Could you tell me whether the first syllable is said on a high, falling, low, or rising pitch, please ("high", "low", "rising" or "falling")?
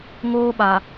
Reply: high